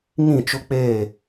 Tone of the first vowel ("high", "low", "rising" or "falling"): falling